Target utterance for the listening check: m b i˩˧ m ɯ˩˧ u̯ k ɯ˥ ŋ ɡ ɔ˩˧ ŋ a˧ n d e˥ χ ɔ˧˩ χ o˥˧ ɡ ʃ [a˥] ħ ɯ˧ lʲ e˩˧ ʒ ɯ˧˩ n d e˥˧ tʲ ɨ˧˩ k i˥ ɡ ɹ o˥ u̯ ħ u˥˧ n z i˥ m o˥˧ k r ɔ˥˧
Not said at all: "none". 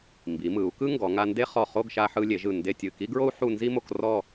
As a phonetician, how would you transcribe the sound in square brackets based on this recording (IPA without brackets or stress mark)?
a˧